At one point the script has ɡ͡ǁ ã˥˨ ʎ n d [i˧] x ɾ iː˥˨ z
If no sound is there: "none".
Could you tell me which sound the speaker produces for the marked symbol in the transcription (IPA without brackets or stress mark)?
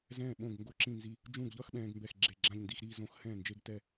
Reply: i˧